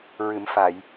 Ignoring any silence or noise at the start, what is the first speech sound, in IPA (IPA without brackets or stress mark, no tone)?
ɹ